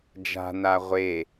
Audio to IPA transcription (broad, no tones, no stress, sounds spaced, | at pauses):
d͡ʒ a̤ n a ʁʷ e